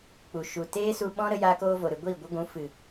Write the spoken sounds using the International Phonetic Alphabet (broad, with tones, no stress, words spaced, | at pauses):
k͡pu˨ʃu˨ teː˦su˧ ɓɔ̃˦ ɾə˦jaː˦koː˦vo˨ ɾɨ˨ɡʷiː˦˨ ɡʷə˦ɡʷũ˨˦fɨ˨